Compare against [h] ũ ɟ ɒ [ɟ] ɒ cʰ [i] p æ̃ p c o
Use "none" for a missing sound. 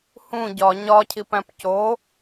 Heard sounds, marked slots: h, ɲ, i

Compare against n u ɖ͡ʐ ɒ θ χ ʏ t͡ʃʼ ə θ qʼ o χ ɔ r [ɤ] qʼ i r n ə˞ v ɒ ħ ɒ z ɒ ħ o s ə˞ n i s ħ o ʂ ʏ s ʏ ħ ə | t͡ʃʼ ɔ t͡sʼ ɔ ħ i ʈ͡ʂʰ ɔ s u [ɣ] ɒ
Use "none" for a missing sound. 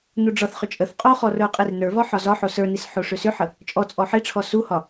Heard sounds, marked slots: ə˞, h

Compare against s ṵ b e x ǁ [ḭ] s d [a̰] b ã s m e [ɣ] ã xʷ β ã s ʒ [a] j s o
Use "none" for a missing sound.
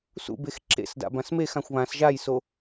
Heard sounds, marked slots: ḛ, a̰, x, a

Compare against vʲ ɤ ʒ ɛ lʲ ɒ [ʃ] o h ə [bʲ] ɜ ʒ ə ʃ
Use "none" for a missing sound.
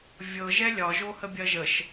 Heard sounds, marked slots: ʒ, bʲ

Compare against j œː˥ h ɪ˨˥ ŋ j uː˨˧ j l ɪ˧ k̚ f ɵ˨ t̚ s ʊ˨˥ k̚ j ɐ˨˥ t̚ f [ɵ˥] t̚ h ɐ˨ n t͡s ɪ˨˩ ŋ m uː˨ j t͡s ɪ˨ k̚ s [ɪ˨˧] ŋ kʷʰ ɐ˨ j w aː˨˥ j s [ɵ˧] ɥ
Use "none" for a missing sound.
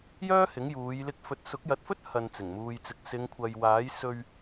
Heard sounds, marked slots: ɵ˥, ɪ˨˧, ɵ˧

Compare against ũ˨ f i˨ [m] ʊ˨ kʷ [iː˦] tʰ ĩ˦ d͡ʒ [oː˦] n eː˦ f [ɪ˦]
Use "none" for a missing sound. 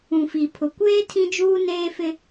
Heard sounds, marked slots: pʰ, eː˦, uː˦, ɪ˦

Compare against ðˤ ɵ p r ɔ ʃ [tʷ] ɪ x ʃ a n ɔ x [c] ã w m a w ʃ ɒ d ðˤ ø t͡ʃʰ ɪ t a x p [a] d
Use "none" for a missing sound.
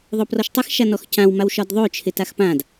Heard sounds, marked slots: tˤ, c, ã

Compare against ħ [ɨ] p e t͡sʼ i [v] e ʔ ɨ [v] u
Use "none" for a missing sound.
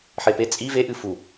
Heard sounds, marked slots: e, v, f

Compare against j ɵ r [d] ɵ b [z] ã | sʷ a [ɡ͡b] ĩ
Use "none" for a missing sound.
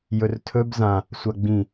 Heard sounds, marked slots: tʰ, z, ɡ͡b

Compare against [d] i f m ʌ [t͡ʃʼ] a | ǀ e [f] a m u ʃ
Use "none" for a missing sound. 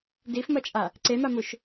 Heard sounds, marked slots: d, t͡ʃʼ, m

